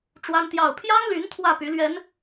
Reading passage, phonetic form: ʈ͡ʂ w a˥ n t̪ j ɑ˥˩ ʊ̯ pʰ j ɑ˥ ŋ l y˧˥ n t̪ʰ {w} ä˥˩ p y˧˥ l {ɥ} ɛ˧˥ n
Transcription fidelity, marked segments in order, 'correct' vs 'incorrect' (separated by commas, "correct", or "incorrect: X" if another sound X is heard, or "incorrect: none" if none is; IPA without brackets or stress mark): correct, correct